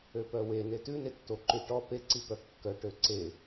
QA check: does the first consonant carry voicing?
no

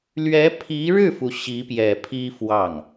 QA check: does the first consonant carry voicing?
yes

